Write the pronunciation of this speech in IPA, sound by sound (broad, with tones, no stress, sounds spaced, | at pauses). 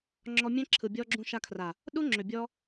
ŋ͡ǁ ɔ˧ mʲ ɛ̃˦ ǁʰ ɯ˨ bʲ ɔ˧ ɡ͡ǁ ũ˧ ʃ a˧ kʰ r a˨ | ɗ u˦ ŋ͡ǁ ʏ˨ bʲ ɔ˧